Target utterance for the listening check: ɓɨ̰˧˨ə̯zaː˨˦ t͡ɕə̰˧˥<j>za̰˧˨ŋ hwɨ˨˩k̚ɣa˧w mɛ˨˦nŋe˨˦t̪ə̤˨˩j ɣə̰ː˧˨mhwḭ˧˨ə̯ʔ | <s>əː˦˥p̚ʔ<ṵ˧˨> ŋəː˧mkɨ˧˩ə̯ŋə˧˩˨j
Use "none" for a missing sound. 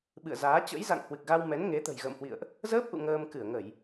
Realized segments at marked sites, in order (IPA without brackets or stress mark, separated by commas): j, z, ṵ˧˨